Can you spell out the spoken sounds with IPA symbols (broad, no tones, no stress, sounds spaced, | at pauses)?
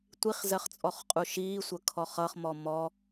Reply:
tʷ i χ z ɜ χ t͡sʼ ɔ χ qʼ u ʃ iː sʷ ə kʰ ɔ χ ʌ χ m ɔ m ɔ